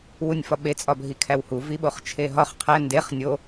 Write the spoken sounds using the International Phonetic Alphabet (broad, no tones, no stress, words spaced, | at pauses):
wunʲfɒɓe t͡sʼɒbʱikʰæwhu viɓoχt͡ʃʰeɦɒχ qʰæ ndeχ nʲo